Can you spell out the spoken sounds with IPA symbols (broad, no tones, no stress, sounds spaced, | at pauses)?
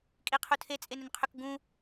kʼ i qʰ u tʰ e t͡sʼ e n ʏ n qʰ ʏ k ɡ ũ